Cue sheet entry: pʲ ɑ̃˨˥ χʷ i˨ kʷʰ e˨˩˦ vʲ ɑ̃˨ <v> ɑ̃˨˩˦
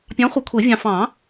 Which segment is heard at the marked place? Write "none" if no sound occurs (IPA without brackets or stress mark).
f